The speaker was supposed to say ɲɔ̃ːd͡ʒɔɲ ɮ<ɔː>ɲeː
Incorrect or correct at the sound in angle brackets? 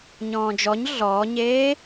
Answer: correct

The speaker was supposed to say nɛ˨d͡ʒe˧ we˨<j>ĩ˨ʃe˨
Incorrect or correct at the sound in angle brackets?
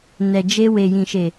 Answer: correct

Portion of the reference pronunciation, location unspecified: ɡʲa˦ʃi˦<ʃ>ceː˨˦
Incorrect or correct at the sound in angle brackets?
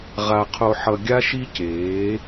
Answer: incorrect: none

